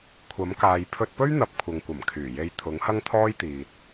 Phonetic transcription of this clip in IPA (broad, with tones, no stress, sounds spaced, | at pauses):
kʷʰ ɐ˨˥ m k aː˨ j pʰ ɵ˧ t̚ p ɵ˥ ɥ n̪ ɐ˨˥ p̚ kʷʰ ɐ˨ ŋ kʷ ɐ˨˩ m kʰ yː˨˩ j e˧ j t̪ʰ ʊ˨˥ ŋ h ɐ˥ ŋ t̪ʰ ɔː˥ j t̪ iː˨ t̚